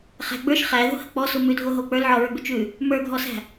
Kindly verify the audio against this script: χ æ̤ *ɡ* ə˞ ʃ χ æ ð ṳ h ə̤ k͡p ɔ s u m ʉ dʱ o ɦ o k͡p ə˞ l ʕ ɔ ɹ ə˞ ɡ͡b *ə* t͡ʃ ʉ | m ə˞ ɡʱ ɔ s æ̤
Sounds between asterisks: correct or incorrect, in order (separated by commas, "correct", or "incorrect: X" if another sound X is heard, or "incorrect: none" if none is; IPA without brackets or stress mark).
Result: incorrect: ɡ͡b, incorrect: ʉ